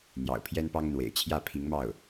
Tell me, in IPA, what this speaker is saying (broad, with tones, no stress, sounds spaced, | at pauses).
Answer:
n̪ j ɑ̰˨˩ ʊ̯ pʰ j ɛ˥ n p ɑ˥ ŋ ə˨ n w ḛ˨˩ ɪ̯ t͡ɕʰ j ä˥˩ pʰ i˧˥ ŋ m ɑ˥˩ ʊ̯